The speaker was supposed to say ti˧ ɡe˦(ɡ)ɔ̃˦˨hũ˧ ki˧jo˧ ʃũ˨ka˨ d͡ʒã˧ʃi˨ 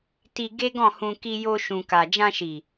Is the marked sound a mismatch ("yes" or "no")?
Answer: no